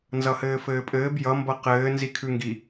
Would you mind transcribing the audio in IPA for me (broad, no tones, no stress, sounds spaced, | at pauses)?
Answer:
n z ʌ h ɘː f ɘː pʼ ɘː b j ʌ m b ʌ q ɘː n z i kʰ ʉ ŋ ɡ i